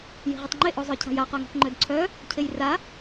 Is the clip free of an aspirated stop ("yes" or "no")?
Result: no